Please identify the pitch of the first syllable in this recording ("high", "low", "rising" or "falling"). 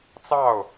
falling